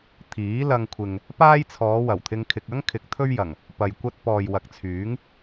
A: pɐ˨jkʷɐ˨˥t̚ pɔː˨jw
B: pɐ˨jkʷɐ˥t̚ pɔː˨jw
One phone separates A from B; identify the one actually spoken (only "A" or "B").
B